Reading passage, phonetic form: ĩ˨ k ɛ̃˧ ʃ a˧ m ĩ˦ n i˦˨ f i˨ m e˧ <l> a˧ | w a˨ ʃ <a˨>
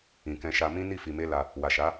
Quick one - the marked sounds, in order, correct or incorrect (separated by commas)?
correct, incorrect